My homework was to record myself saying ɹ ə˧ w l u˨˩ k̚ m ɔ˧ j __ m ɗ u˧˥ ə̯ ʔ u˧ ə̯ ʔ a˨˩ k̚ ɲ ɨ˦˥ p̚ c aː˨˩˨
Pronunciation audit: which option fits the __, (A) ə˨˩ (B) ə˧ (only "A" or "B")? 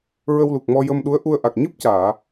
B